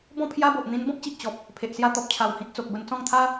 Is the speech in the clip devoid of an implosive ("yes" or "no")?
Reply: yes